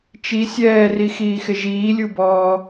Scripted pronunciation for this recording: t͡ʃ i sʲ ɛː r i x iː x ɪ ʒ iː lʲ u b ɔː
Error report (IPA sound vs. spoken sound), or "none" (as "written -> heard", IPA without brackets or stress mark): none